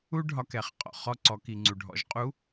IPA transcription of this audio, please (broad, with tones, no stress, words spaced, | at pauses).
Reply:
u˥ɖʱɒ˧k ɛ˩˧χqʼɔ̰˩ χɔ˧ǀɔ˩˧ ki˩ŋ͡ǀu˩ɖʱɔ̰˩˧ʒqʼu˧˥